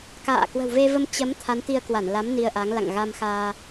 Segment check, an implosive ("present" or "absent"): absent